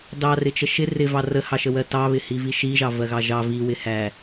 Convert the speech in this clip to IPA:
d ɑ r ɪ t͡ʃ ə ʃ ɪ r ɪ v ɑ r ə h ɑ ʃ ə w ɜ t ɑ β ɪ h i v i ʃ i ʒ ɑ v ɜ ɣ ɑ ʒ ɑ v i w ɪ h æ

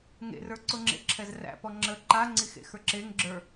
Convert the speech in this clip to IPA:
ŋ ḛ r ə˞ ǀ ʊ ŋ͡ǁ ḛ ǁʰ ɛ z r æ̰ p ɔ ŋ͡ǁ ə ǃ a ŋ͡ǀ i x ḛ x ə˞ ǁ e ŋ ɡ͡ǁ ə˞

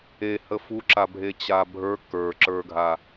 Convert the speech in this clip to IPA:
e h ə f u ǁ a bʱ e t͡ɕ a bʱ ə˞ k ə˞ ǁ ə˞ ɡʱ a

